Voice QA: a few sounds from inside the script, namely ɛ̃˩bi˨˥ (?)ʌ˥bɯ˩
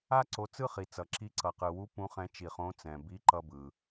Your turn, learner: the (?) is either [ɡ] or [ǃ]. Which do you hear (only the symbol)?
ǃ